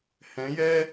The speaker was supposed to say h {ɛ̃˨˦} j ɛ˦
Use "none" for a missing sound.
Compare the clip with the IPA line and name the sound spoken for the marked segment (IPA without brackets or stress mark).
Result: ɛ̃˨˦